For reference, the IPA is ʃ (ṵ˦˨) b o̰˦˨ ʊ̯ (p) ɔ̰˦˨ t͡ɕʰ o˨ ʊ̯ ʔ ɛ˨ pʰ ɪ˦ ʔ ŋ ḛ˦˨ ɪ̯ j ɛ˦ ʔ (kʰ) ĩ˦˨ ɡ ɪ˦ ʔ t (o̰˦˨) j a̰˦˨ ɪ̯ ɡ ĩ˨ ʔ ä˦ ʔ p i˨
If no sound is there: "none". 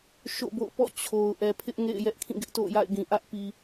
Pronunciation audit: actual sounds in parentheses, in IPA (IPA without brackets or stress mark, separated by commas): o̰˦˨, p, kʰ, o̰˦˨